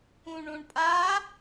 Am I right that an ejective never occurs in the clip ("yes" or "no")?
no